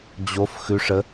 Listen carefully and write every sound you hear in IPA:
d͡ʑ o f x ʉ ʂ ə

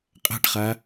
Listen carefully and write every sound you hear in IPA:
qʼ a̤ ʈ χ a

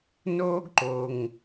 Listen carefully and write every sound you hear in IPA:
n oː˥ ɡ ǃ o˩ ŋ

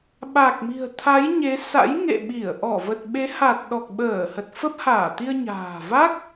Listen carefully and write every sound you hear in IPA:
ɓ a˨˩ k̚ m i̤˨˩ ə̯ t̪ʰ a˨˦ j ɲ e˨˦ s a̰˧˥ j ŋ ḛ˧˨ ɓ i˧˩ ə̯ ʔ ɔ˧˩ v ə˨˩ t̚ ɓ e˨˦ h a˨˩ t̚ ɗ ɔ˨˩ k̚ ɓ əː˧˩ h ə˨˩ t̚ f ə˦˥ p̚ h aː˧˩ t̪ i˧ ə̯ ɲ a̤ː˨˩ v aː˦˥ k̚

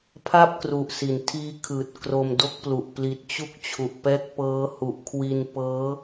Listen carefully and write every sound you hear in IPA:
pʰ a˥˩ p̚ k r u˨˩ ʔ s i˩˦ n tʰ iː˦˥ kʰ ɯː˨˩ t̚ k r o˧ m d o˥˩ k̚ p l u˨˩ ʔ p l i˨˩ t̚ t͡ɕ u˦˥ k̚ t͡ɕʰ u˨˩ ʔ p ɛː˦˥ k̚ p ɤː˦˥ h u˨˩ ʔ kʰ w i˧ n p ɤː˦˥

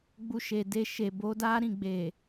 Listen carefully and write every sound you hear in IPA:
ɡ͡b u˧ ʃ e˨ d e˧ ʃ e˨ b o˨˦ d a˦ ɾ ĩ˦˨ ɡ͡b e˨

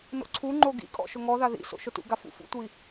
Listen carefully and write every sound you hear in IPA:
n o̰ ǀʰ u ŋ͡ǃ o ɡ ḭ kʼ ɔ̰ ʃ ʊ ŋ ɔ ð a ð ḭ s o̰ ʃ ʊ t ṵ ɡ a f ṵ f ṵ tʷ i

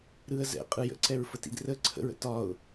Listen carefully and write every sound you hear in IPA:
ɾ ɯ ə̯ z ɛ̰ qʼ ɯ j ə̰ ǀ ɛ ɹ f ə t ḭ d r ə ǀʰ ə̰ ɹ ə̰ t ɒ ʊ̯

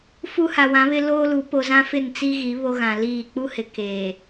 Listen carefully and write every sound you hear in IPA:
f u˦ h a˨ w ã˨˦ β ɪ˦ l oː˦ l u˨˦ p o˨ z ã˦ f ɪ˦˨ n t͡s i˦ ɣ i˨˦ β o˦ ɣ ã˨ l iː˦˨ k͡p u˦ h ɪ˨ k eː˨

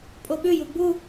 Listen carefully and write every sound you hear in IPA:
pʼ o ɓ ʉ j u ɡ͡b u

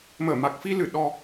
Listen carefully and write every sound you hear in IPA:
m əː˧˩ m a˨˩ k̚ f i˧ l ɨ˧˩ ɗ ɔ˧

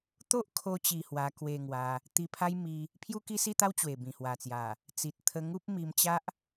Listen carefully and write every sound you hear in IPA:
t̪ o˦ ʔ kʰ o˧ t͡ɕ i˧ h w a˧ k w e˧ ŋ w a˧ | t̪ i˧ pʰ a˦ j m i˧ | pʰ j u˦ k i˦ s i˥˧ t̪ a˦ w t͡ɕ w e˨˩ b ĩ˨˩ h w a˨˩ t͡s j a˨˩ | t͡s i˨ t̚ t̪ʰ ə˧ ŋ u˦ p̚ m i˧ m t͡ɕ a˦ ʔ

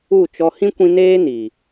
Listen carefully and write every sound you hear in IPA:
u˦˨ t͡ʃ ɔ˦ h ĩ˦ kʷ ĩ˧ n eː˦ n iː˨

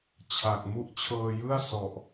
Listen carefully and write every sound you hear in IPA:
t͡ɕʰ a˨˩ k̚ m u˦˥ ʔ t͡ɕʰ ɤː˧ j ɯ˥˩ a̯ s ɔ˨˩ ʔ

